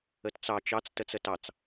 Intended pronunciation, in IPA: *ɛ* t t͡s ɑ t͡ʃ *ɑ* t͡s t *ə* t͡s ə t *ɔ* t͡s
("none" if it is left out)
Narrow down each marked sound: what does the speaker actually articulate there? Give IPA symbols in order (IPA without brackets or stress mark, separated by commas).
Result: ə, ɑ, ə, ɑ